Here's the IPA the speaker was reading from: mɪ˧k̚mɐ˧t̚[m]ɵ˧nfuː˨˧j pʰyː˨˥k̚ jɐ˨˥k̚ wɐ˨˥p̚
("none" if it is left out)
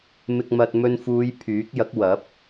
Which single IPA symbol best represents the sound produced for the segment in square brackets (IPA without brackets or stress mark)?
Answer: m